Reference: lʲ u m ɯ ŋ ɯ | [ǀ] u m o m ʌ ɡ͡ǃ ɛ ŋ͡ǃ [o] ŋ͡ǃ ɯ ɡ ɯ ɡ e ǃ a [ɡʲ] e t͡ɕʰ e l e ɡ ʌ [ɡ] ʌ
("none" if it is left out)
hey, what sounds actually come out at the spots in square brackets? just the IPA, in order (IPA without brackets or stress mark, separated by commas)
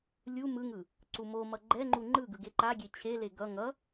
ǀ, u, ɡʲ, ŋ